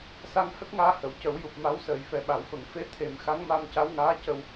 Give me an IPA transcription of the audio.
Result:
s a˧ ŋ h ə˦˥ k̚ ŋ aː˧ h ə˨˩˨ w c ə˨˩˦ w j u˨˩ p̚ m a˧˥ w s əː˨˩˨ j f ɛ˨˩ ɓ a˨˩˨ w f ə˨˩˨ ŋ f e˧ t̪ʰ e˨˩ m x a˧˥ ŋ m a˧ m c a˧˥ w ŋ aː˧˥ c ə˧ w

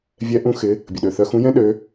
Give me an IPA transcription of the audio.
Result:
vʲ ɛ˦˥ ʔ ũ˦˥ x ɪ˨˦ | bʲ ə˩ ɗ ø˩ θ œ˨˦ x ũ˨˦ j ɛ̃˦˥ ɗ ø˨˦

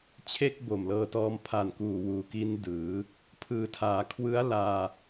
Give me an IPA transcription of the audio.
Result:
t͡ɕʰ e˥˩ k̚ b o˨˩ m l ɤː˧ t ɔː˧ m pʰ a˨˩ n k uː˨˩ w uː˨˩ k i˧ n d ɯː˩˦ | pʰ ɯː˩˦ tʰ aː˩˦ kʰ w ɯ˦˥ a̯ l aː˧

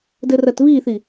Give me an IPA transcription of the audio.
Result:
d ɘ r ɐ t β i θ i

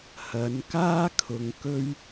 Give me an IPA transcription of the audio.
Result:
h ɐ˨˧ n k aː˥ kʰ ʊ˧ ŋ k ɵ˥ ɥ

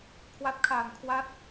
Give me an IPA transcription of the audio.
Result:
kʰ w a˦˥ t̚ kʰ aː˨˩ n kʰ w a˥˩ t̚

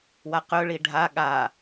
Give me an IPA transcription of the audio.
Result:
w a q ɵ ɭ i ɖʱ a ɠ a

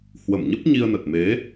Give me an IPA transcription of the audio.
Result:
h w ə˧˩ m ɲ ə˦˥ p̚ ɲ i˧ ə̯ n ə˨˩ t̚ m e˨˦

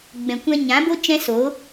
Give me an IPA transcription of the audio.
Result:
ɡ͡b ɛ̃˨ kʷ ɛ̃˧ ɲ ã˨˦ b o˦ t͡ʃ ɛ̃˦ s o˨˦

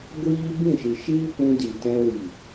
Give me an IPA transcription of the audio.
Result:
ɡʷ iː˦ b ĩ˦˨ ʃ ɨ˨ ʃ iː˦ p ũ˧ d i˨ t ɛ̃˧ w i˨

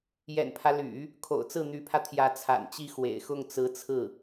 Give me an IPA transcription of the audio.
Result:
j ɛ̰˨˩ n pʰ ä˦ l y̰˨˩˦ | kʰ o̰˨˩ ʊ̯ t͡s ɹ̩˥˩ n̪ y˧˥ pʰ ä˧ t̪ʰ j ä˧˥ t͡sʰ a̰˨˩ n t͡ɕ i˥ x w ḛ˨˩ ɪ̯ x ʊ˥˩ ŋ t͡s ɹ̩˧˥ t͡sʰ ɹ̩˥˩

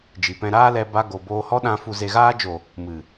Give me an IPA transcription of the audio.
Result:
d͡ʒ i˨ p ɛ̃˧ ɾ aː˦ l ɛ˧ b a˧ ɡ o˨ b oː˧ h ɔ˦ ɗ ã˧ f u˨ z e˨ ɣ aː˧ d͡ʒ o˨ | m ɨ˨

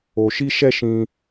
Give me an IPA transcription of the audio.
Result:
o˧ ʃ i˦ ʃ ɛ˦ ʃ ĩ˦

